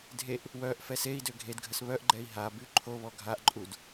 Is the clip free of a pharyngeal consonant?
yes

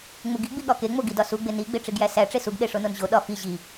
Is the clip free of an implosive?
no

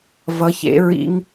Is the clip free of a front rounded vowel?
yes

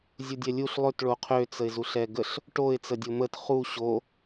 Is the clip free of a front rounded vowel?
no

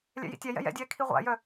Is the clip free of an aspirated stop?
no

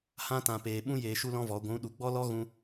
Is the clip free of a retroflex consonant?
yes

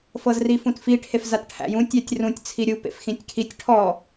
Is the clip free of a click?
yes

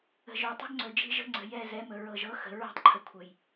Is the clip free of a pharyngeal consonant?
yes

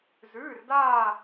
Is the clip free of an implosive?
yes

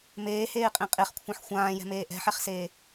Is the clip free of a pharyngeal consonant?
no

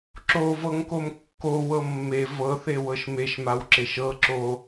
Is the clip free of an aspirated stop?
yes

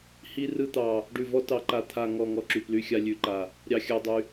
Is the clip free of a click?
no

